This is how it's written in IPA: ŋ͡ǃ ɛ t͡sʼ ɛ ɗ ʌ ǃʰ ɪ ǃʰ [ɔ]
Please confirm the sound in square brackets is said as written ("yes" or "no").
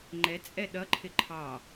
no